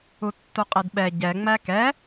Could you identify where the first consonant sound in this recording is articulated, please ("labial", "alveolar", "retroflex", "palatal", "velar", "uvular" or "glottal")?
alveolar